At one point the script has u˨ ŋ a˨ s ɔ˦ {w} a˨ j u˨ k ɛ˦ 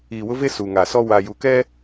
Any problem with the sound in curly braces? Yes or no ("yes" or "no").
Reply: no